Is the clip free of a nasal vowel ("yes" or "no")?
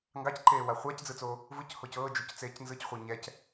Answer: yes